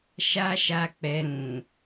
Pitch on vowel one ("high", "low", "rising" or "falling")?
high